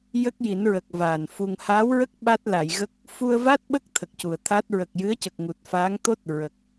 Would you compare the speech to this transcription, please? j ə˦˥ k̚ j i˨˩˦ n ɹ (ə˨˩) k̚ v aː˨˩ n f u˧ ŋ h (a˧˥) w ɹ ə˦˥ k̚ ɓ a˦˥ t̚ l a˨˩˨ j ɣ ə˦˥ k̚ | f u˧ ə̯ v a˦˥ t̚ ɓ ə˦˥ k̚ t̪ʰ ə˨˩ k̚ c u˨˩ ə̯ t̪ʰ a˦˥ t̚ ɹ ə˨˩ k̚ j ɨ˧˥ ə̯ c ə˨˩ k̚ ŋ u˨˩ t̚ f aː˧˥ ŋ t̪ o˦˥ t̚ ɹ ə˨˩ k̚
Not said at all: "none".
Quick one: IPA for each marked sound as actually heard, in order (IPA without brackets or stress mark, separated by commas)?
ə˨˩, a˧˥